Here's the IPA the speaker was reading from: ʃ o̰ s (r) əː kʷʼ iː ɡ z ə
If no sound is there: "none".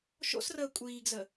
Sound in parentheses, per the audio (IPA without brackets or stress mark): r